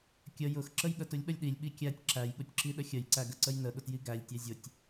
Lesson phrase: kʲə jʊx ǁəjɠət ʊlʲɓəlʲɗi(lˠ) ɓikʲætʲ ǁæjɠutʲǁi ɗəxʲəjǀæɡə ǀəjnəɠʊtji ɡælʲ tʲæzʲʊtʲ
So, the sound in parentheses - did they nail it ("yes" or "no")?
no